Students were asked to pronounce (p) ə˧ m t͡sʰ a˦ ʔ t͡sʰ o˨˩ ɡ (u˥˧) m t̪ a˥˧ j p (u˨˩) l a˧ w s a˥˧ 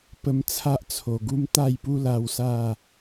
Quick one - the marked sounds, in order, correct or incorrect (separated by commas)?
correct, incorrect, incorrect